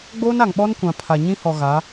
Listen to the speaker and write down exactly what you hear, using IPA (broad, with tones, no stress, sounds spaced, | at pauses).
ɡ͡b oː˦ n a˨ ŋ ɓ ɔ˦ n kʷ ã˨ pʰ a˨ ɲ ĩ˦ h ɔ˨ ɣ a˨˦